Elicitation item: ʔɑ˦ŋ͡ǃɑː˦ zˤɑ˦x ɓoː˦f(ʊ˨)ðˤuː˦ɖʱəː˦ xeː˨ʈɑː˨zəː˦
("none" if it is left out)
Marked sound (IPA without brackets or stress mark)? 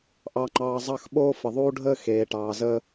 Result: ə˨